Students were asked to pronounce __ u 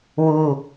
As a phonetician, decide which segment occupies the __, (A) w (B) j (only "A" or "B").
A